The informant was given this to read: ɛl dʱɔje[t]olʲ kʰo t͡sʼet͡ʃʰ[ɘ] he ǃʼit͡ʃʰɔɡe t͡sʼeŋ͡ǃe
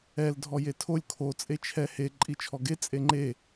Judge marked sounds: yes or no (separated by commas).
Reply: no, no